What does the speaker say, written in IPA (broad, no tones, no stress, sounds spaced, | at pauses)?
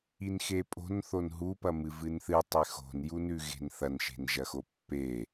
i n x e pʼ o̤ n θ o n ɦ u p ɐ m ɨ v ɨ n θ ɨ tˤ e x o̤ n j u n ʉ ɣ e̤ n θ ɐ n ʃ e̤ n ʒ ɐ x o pː e